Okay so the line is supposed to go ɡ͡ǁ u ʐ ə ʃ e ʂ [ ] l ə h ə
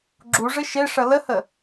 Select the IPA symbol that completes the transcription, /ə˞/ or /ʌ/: ʌ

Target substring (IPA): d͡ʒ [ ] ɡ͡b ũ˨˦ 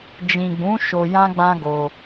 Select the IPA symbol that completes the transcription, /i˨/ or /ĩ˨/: ĩ˨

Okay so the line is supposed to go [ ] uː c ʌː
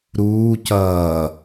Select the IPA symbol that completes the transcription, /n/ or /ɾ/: ɾ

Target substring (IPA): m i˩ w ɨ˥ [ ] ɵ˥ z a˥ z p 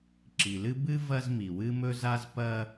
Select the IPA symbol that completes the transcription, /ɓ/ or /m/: m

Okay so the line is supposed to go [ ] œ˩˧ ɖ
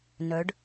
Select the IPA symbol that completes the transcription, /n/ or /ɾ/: n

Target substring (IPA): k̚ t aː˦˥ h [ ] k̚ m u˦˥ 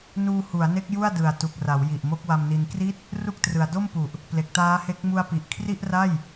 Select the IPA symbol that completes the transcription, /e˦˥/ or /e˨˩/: e˦˥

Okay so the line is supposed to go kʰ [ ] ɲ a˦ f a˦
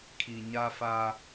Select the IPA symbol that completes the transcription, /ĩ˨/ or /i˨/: i˨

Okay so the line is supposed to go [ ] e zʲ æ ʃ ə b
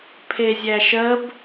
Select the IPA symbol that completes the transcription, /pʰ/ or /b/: pʰ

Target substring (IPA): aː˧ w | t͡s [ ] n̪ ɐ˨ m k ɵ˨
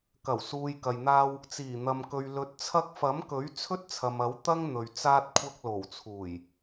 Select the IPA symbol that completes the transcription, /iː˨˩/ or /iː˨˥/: iː˨˩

